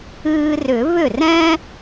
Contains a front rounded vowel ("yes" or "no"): yes